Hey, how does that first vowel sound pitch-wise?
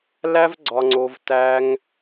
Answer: high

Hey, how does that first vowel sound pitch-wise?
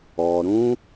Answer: low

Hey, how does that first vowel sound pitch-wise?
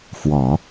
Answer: low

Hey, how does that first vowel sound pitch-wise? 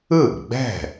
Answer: falling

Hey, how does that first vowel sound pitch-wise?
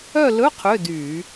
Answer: falling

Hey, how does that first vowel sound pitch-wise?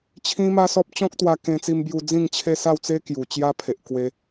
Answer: high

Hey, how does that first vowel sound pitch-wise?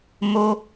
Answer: high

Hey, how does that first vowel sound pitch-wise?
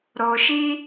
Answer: low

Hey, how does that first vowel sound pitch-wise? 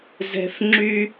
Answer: low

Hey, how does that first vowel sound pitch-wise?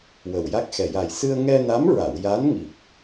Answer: low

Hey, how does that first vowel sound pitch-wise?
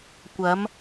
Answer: rising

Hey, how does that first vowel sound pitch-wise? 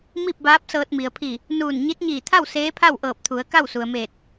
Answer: falling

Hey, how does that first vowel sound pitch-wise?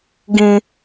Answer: high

